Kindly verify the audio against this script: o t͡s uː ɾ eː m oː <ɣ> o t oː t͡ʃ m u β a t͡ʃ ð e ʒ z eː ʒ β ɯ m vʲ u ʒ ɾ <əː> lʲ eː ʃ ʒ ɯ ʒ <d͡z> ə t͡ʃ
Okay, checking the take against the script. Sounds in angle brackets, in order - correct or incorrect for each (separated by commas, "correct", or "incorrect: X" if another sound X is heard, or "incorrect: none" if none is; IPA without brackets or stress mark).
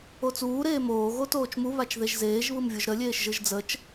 correct, incorrect: ə, correct